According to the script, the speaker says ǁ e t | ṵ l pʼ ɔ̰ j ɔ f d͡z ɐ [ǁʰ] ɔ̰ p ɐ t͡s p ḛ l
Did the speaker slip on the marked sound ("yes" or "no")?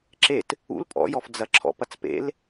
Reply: no